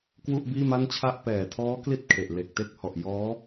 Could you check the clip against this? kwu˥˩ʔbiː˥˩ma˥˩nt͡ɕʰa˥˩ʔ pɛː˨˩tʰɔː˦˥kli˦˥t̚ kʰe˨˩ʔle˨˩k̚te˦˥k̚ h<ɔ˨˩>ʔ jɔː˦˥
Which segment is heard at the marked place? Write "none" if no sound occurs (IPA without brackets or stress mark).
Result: ɔ˨˩